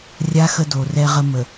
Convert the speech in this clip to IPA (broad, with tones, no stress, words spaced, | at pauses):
rʲa˦ xə˦do˨rɛ˦ʁə˦ mə˨